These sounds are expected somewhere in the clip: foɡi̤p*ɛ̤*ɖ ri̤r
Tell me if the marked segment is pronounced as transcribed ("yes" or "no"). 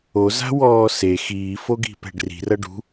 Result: yes